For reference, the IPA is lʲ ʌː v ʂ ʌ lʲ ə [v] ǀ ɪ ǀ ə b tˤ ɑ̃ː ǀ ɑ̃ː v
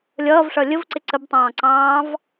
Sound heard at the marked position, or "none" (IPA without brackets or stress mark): v